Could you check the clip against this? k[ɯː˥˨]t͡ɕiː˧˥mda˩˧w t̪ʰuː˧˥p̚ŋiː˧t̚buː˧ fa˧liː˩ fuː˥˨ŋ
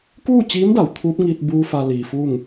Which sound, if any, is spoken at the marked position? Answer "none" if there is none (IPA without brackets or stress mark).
uː˥˨